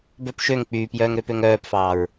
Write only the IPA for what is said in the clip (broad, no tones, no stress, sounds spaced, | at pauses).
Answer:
b œ p ʃ ø ŋ k͡p yː p j œː ŋ ɾ ø p ø ŋ œː p f ɑː ɹ